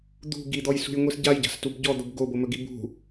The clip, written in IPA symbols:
d̪ ṳ ɡ i d̪ ɔ j s ṳ j ŋʷ i s ɟ a j ɟ a̤ s t u b ɟ ɔ d̪ o b ɡ o b o m ɵ ɡ i b ṳ

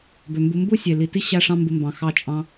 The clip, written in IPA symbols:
b ø˨ m b u˧ m b u˦ sʲ e˨ l i˨ t i˦ ɕ æ˦ ʂ ɑ̃˦ m b ɯ˧ m b ɑ̃˨ x ɑ˧ t͡ʃʼ ɑ̃˧

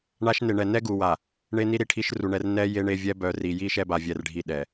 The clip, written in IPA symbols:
ɳ a˦ ʃ n e˨ ɳ ɛ˨ n ɛ˦ ɡ u˨ w a˨ | ɳ e˦ n i˦ ɾ i˨ ʈʰ i˦ ʃ r u˨ ɳ ɛ˦ r n ɛ˦ j e˦ ɳ e˦ vʲ ɛ˦ b œ˨ r i˨ j i˦ ʃ ɛ˦ b a˨ vʲ ɛ˨ r ɖʱ i˨ ɗ ɛ˨

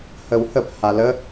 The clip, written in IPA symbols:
h ə w h ə p h a l ə

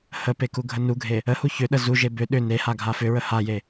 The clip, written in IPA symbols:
h ə p e k u ɡʱ ə n u ɡʱ e | ə h u ç ʏ ɗ ə z u ʒ e b ʏ ɗ ʏ n e h a ɡʱ a f ʏ ɹ ə h a j e

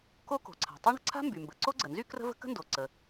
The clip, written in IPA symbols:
k o˥ k o̤˩ ǀʰ a̤˩ tˤ y˥ ɳ ə̤˩ ǀʰ a̤˥ m b y˩ m b ə˩ ǀ o˥ ɡ͡ǀ ə˩ n z y˥ k r ə̤˥ v ə̤˥ k ə̤˥ n d o˩ ǀ ə˩

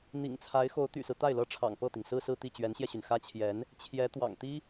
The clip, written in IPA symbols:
n̪ ḭ˨˩ ŋ t͡sʰ a˧˥ ɪ̯ x o˧˥ ʊ̯ t̪ y̰˨˩ s ɹ̩˦ t̪ a˥˩ ɪ̯ l ɤ˥ ʈ͡ʂʰ ɑ̰˨˩ ŋ p ɤ˥˩ t̪ i˩ ŋ s ɹ̩˥˧ s ɹ̩˥˧ t̪ i˥˩ t͡ɕ ɥ ɛ˧˥ n ɕ j ɛ˧ ɕ y˩ n x ä˥ t͡ɕʰ j ɛ˧˥ n | t͡ɕʰ j ɛ˧˥ t̪ w ɑ̰˨˩ ŋ t̪ i˥

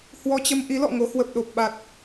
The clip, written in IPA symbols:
h w ɔ˧ t͡ɕ ə˧ m ʔ i˨˦ l ɔ̰˧˨ ŋ o˨˦ h w ə˨˩ p̚ ɗ o˨˩ p̚ ɓ a˨˩ t̚

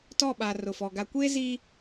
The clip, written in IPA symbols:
t ɔ˦˨ ɓ a˨ r ʊ˨ f ɔ˨ ɡ a˨ kʷ eː˦ z iː˦

